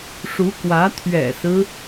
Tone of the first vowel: rising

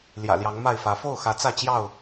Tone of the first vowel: low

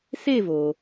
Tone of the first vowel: falling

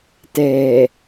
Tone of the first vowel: low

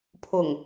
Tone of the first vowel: low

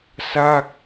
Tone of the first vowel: falling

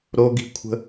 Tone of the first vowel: high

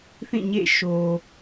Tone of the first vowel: falling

